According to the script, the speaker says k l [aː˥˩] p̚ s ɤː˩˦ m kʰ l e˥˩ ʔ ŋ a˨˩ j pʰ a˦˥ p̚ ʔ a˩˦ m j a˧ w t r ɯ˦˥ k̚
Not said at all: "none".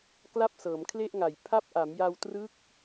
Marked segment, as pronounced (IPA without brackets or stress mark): a˥˩